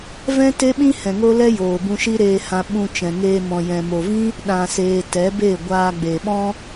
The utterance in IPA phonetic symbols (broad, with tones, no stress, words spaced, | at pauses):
vɛ̃˦te˦ɓĩ˦ hɛ̃˨ŋo˦lɛ˦ joː˨ bũ˧ʃi˦ɾeː˧hã˧ ɓũ˧ t͡ʃɛ̃˨ŋeː˧ mɔ̃˨jɛ̃˨mo˨vĩ˦ | ɗã˨seː˨ tɛ˨˦be˦˨ ɡʷaː˧ɡ͡be˨ɓɔ̃˦